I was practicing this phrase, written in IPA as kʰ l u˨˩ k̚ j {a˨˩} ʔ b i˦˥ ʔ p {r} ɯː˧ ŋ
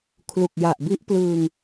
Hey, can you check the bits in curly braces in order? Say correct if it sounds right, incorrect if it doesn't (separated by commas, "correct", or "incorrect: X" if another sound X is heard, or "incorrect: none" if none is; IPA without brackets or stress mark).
correct, incorrect: l